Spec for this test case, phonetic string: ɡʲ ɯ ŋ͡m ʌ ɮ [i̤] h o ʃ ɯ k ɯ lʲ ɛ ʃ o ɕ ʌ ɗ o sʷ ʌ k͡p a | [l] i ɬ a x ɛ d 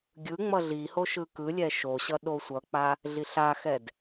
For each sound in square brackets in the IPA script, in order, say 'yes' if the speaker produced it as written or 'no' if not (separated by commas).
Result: no, no